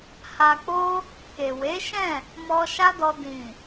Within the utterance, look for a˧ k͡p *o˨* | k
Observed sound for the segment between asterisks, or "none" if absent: o˦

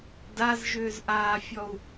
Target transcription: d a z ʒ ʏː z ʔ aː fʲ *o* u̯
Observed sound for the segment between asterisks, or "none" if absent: ɔ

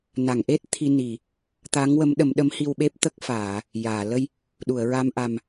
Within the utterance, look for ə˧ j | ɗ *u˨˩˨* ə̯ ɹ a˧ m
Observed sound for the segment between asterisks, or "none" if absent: u˨˩˨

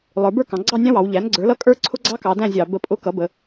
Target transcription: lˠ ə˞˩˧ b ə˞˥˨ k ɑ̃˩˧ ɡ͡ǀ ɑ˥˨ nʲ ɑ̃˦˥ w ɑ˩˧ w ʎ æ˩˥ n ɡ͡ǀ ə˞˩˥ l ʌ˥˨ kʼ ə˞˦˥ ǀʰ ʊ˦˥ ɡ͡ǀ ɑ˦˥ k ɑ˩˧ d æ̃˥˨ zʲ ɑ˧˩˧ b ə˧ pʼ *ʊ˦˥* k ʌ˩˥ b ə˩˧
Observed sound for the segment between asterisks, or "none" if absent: ʊ˦˥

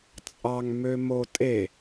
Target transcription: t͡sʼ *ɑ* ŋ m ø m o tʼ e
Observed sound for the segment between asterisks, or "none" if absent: ɑ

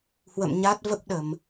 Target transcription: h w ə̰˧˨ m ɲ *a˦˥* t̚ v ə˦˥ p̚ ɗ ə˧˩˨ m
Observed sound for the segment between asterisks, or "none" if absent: a˦˥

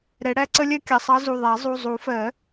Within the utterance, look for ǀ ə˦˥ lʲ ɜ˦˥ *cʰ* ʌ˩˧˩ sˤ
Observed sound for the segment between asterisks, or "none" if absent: kʲ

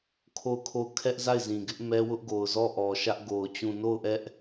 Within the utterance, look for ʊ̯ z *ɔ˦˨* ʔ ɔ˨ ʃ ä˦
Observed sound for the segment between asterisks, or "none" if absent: ɔ˦˨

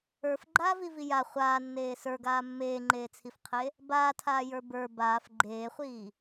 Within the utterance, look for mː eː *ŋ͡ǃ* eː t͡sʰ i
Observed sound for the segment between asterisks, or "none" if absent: ŋ͡ǃ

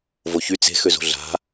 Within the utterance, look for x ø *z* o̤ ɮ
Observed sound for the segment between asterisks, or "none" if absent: z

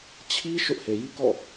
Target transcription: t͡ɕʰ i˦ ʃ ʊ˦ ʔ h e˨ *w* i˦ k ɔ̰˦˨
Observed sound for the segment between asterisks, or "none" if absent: j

